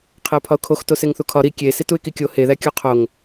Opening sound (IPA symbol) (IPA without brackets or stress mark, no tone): qʰ